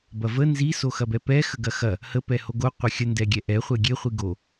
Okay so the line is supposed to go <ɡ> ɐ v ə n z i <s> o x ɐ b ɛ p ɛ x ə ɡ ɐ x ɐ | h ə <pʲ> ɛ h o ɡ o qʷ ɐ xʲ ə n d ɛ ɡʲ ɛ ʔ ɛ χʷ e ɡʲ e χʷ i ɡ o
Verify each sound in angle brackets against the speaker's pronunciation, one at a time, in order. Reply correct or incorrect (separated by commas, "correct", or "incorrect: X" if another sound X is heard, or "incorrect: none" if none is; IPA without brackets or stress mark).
incorrect: b, correct, incorrect: p